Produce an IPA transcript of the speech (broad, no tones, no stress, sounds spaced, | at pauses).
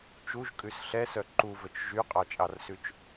t͡ʃ u ʒ kʼ ʉ s ɬ ɛ s œ ǃ u v ɵ t͡ʃ ʒ y qʼ ɑ t͡ʃʼ ɑ r s ʉ t͡ʃ